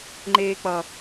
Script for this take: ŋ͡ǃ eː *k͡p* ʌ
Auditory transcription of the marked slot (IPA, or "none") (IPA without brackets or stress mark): k͡p